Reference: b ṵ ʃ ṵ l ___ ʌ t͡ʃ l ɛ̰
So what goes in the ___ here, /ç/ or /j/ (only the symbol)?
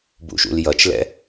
j